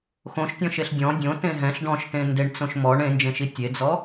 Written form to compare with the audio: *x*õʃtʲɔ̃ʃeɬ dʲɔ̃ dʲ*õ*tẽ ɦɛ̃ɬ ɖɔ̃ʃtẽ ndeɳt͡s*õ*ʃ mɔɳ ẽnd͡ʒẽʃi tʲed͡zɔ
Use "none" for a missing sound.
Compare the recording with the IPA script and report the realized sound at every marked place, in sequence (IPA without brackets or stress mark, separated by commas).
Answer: x, õ, õ